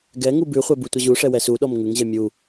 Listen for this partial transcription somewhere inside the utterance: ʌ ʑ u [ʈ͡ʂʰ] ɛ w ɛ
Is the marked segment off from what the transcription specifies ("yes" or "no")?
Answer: yes